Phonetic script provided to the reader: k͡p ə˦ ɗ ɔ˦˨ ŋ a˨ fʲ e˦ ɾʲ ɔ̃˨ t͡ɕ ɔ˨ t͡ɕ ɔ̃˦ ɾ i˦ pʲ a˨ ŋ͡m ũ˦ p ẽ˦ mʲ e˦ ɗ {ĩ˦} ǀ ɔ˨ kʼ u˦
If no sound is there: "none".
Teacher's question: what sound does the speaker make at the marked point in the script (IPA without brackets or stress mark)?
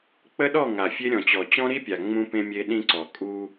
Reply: ĩ˦